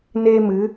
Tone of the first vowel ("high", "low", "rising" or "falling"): high